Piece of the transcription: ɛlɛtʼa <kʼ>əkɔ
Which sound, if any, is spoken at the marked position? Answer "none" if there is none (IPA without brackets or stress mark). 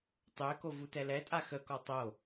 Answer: x